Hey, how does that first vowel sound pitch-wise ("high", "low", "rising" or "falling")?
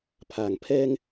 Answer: low